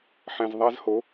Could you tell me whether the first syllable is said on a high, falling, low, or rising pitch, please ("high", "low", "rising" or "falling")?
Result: low